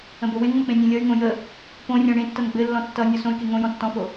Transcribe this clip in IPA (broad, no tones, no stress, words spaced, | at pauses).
ə̃bowẽŋŋ͡mə k͡pẽnʲẽlʲʌy̯ŋõ jə | põrʲɔ̃ ɽẽtːʌn ɡ͡bɘlːɔ̃ tːʌ nʲɔsõy̯ke ŋõ jɔ̃tːɔ̃fo